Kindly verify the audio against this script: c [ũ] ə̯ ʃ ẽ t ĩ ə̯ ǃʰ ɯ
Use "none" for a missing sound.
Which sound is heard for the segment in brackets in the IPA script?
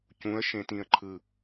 ũ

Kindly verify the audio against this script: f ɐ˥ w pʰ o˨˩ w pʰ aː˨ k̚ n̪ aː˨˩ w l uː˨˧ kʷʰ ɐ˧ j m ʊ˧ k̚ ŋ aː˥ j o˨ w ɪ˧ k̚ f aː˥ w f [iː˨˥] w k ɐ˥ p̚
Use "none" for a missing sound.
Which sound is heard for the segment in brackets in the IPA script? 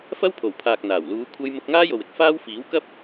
iː˨˥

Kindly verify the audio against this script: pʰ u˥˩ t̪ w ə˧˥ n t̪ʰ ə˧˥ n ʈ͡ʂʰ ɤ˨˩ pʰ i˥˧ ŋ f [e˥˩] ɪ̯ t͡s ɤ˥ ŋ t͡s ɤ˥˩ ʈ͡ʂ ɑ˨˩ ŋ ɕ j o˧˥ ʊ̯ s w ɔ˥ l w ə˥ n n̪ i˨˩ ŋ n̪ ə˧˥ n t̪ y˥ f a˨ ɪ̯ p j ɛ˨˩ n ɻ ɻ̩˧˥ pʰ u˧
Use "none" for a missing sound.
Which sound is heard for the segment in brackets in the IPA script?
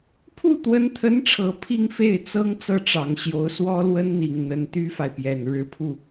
e˥˩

